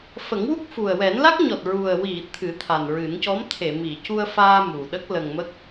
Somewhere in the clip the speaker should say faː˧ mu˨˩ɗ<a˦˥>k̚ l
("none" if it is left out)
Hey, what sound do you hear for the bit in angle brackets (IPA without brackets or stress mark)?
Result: ə˦˥